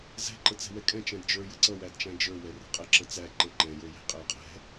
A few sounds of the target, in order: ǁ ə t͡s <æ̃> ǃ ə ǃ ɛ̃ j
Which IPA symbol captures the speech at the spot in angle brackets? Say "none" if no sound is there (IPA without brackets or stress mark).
æ